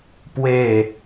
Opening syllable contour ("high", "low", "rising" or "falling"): falling